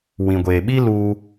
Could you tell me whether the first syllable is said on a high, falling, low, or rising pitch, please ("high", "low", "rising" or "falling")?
low